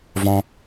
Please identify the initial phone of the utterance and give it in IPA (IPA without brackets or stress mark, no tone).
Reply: v